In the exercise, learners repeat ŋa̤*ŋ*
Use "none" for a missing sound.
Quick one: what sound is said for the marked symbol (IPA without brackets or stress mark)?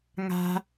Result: none